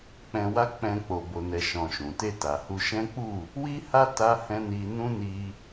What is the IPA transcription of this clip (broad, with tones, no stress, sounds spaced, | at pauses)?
k͡p ɛ̃˧ w a˦ k͡p ɛ̃˧ k͡p o˦ b o˦ n ɛ˦ ʃ ɔ̃˧ ʃ ũ˨ t e˧ t a˨ h u˧ ʃ ɛ̃˦ k͡p u˦˨ | w i˦ h a˦ t a˦ h ɛ̃˦ n i˧ n ũ˦ n i˧